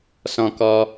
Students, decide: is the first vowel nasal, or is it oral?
nasal